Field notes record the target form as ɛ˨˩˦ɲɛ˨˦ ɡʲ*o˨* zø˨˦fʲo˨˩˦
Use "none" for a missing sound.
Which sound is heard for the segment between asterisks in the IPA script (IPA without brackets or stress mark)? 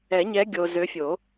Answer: o˨